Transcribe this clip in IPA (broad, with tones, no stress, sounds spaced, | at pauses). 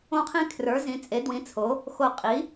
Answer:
õ˦ qʰ ĩ˦ kʰ r ə˞˨˥ z ĩ˨˥ t͡sʼ e˨˥ d w ĩ˨˥ t͡sʰ o˨˥ | x o˧˩ qʼ i˨˥